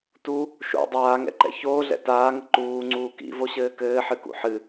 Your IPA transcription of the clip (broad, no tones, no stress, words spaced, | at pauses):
tu | ʃo̰ dˤaːŋɛ̰ǃɛ̰ çoːɮɛ̰ taːŋɘ ǃuːŋ͡ǀuː kḭvoɕɘː kɘːħɨkṵ ħɨ